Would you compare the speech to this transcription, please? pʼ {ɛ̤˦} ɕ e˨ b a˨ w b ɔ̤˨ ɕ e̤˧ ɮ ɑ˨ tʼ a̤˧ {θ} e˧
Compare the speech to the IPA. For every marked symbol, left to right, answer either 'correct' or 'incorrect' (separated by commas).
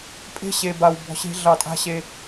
incorrect, incorrect